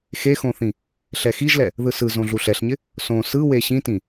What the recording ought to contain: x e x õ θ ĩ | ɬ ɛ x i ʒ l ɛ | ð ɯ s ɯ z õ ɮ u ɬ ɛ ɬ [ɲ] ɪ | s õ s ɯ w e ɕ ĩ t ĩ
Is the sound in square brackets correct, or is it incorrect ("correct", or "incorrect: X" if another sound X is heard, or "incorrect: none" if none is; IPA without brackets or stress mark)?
correct